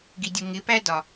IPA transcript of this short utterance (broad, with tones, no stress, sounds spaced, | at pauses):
ɡ i˨ dʲ ʊ˨ ŋ ɪ˨˦ p æ˦ d ɒ˨